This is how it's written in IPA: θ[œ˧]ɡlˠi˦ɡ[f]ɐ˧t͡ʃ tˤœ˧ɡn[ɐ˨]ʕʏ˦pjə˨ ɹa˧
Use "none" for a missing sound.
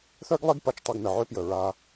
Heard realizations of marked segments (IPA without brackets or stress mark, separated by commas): œ˦, p, ə˨